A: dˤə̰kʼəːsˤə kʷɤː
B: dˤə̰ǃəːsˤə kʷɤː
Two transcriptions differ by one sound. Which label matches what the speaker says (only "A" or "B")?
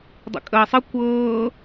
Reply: A